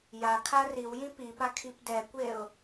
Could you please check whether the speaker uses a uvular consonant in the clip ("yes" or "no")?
no